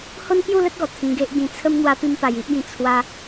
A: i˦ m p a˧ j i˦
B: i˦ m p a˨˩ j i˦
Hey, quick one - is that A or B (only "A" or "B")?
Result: A